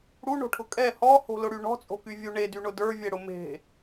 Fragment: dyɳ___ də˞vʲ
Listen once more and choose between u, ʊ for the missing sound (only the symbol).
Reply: ʊ